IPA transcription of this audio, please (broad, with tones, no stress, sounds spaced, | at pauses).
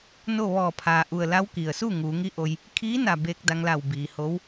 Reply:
n o˥˨ ʋ ɔː˧˩ pʰ aː˩ ʔ u˩ ə̯ l a˧˥ w k i˩ ə̯ s u˥˨ ŋ uː˩˧ ŋ i˧˥ ʔ o˧ j | kʰ iː˧˥ n a˧˩ b eː˧ k̚ d a˧ ŋ l a˧˩ w b iː˩ h o˧˥ w